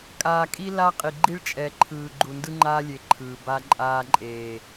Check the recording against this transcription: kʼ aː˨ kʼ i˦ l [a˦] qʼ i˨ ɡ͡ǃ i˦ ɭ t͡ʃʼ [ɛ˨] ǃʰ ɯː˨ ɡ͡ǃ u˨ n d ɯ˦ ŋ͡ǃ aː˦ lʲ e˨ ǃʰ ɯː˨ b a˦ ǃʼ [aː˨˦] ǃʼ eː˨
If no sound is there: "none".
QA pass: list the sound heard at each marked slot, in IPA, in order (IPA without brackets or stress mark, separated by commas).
a˦, ɛ˨, aː˦